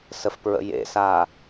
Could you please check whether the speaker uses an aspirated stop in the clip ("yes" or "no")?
no